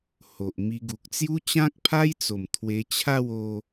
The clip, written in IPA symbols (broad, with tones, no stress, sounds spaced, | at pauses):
h o˨ ʔ m i˧ ɡ u˨ k̚ t͡s j u˦ t͡ɕ ã˦ k̚ pʰ a˦ j t͡s o˨˩ m t̪ʰ w e˧ t͡ɕʰ a˥˧ w o˧